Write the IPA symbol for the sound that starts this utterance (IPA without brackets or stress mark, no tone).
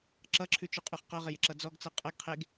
ǁ